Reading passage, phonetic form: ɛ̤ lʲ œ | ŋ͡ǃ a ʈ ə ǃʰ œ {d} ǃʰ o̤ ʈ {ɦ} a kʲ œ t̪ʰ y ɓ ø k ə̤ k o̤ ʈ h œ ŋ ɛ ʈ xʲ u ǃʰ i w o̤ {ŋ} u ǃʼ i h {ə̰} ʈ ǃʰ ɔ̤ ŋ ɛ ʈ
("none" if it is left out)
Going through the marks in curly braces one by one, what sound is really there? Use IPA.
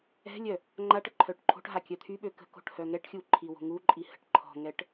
ʈ, ɦ, ŋ, ə̤

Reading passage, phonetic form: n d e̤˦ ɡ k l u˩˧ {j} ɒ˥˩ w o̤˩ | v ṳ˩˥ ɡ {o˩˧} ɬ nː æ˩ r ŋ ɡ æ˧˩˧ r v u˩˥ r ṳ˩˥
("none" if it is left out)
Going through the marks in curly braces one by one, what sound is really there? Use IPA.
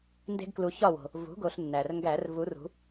ç, o˩˧

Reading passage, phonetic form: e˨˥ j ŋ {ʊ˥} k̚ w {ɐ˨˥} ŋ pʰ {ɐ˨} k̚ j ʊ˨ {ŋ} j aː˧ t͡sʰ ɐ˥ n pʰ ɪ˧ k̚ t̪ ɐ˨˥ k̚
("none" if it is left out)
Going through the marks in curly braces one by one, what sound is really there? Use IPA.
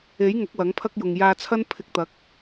ʊ˨˥, ɐ˨˥, ɐ˥, ŋ

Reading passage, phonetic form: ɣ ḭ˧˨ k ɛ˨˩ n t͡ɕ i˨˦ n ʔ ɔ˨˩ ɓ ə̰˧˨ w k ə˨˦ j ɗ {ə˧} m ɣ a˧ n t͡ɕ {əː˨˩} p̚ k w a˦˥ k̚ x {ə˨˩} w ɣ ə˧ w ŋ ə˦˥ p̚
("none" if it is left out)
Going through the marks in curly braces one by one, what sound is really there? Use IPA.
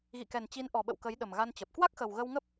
ə˨˩, ə˨˩, ə˨˩

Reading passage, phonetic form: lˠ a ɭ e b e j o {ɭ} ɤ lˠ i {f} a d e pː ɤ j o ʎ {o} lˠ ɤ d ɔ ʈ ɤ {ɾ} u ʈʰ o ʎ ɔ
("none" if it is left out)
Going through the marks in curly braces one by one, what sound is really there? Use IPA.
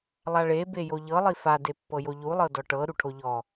ʎ, f, u, ɾ

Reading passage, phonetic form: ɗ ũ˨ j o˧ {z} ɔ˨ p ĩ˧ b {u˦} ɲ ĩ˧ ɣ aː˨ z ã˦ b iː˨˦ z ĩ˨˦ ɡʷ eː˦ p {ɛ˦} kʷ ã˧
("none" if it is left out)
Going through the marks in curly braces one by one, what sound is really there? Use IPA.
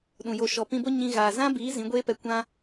ʃ, o˦, ɛ˧

